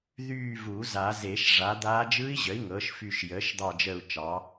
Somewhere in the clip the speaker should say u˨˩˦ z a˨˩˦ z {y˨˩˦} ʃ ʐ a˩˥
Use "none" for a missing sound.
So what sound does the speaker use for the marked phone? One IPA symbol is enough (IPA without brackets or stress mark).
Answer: e˨˩˦